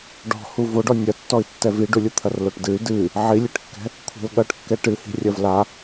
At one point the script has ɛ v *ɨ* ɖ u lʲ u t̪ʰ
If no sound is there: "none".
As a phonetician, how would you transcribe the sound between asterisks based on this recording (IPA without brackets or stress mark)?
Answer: i